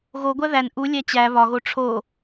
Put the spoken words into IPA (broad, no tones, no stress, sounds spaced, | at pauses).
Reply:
ɣ o ɡʷ æ ð æ n ʔ u lʲ æ t͡ɕ æ β ɒ ɣ o ʈ͡ʂʰ o